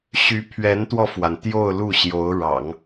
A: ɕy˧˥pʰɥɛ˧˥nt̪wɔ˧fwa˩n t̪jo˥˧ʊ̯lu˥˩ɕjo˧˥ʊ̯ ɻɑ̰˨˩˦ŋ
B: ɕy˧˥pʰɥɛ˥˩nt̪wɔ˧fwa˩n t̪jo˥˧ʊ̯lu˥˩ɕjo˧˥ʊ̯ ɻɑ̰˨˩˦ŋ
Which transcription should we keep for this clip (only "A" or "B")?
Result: A